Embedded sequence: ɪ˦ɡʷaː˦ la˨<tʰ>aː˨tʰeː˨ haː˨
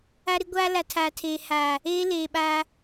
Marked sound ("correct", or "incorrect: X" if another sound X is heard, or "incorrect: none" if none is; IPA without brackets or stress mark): correct